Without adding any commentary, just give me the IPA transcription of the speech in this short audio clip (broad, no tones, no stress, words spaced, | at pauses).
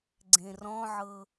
ɡ͡ǀẽrɔ̃ʕɤ